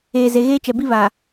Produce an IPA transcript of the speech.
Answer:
eː˨ z e˨ ɣ eː˦ t͡ʃ ɛ˨ b i˦ β a˨

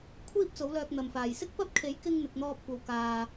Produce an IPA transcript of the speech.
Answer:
kʷʰ iː˥ p̚ t͡s o˨˥ w l œː˧ k̚ n̪ ɐ˨ m f aː˨ j s ɪ˥ k̚ p ɐ˥ p̚ kʰ e˨˥ j k ɪ˥ ŋ n̪ ɪ˨˥ k̚ n̪ ɔː˥ p̚ kʷ ɐ˧ w k aː˨

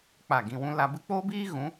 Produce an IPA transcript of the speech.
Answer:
k͡p a˦˨ ɡ ĩ˧ w ũ˦ l a˧ b ɨ˦ k͡p oː˦ b iː˦ ɣ ũ˨˦

